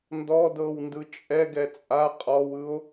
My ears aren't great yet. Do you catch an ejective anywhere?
yes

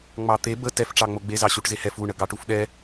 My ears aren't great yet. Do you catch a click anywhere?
no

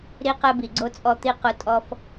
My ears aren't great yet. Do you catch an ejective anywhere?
yes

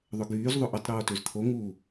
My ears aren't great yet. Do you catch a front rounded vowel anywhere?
yes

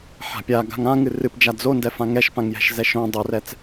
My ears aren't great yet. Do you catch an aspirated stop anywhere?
no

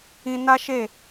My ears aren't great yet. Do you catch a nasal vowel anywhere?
yes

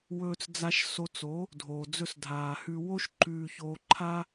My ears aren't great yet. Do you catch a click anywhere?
yes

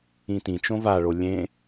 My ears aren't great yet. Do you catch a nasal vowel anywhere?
yes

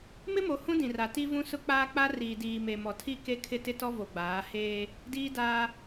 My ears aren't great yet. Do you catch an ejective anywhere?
no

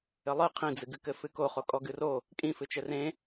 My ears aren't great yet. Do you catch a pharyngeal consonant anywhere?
no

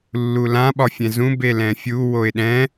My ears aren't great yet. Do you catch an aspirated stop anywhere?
no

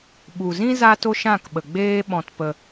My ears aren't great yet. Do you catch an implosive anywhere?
yes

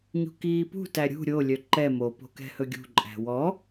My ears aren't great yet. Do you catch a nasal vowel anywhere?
no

